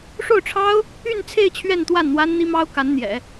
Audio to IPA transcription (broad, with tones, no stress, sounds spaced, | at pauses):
ʂ o˥˩ ʊ̯ ʈ͡ʂʰ ɑ˥ ʊ̯ | y˥˧ n t͡sʰ e˥˧ ɪ̯ t͡ɕʰ ɥ ɛ˥˧ n t̪ w a˥˩ n n̪ w a˥ n n̪ i˥ m ɑ˥ ʊ̯ k a˧˥ n n̪ j ɛ̰˨˩˦